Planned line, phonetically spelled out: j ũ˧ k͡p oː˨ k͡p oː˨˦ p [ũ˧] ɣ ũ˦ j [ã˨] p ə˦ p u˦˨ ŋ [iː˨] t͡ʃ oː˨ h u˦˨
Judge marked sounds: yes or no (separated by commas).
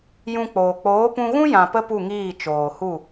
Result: yes, yes, no